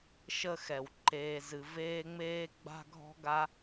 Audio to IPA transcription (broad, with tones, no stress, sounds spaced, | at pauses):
ʃ ə˧ x ɛ˨ w ǃ eː˧ z ɨ˧ v eː˦ ŋ͡m eː˦ ɡ͡b a̤˦ ɡʱ ɔ̤˦ ɡ a˦